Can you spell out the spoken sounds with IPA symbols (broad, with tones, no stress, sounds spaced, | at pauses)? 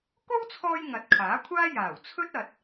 k o˥ w t͡sʰ ɔː˧ j ŋ ɐ˨˥ t̚ kʰ aː˨˥ kʷʰ aː˥ j aː˨˩ w t͡sʰ ɵ˥ t̚ ɐ˧ t̚